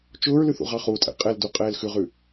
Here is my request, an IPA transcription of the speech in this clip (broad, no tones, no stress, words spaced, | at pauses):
t͡ʃʊːɹlʉ θṵʁɑχutʼɛ̰ qʼɛldu qʼɛːlxʉʁʉ